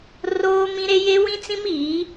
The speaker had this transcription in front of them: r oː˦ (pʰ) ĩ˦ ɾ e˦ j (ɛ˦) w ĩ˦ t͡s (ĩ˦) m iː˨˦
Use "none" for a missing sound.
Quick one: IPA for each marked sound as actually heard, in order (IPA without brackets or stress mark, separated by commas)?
m, e˦, ĩ˦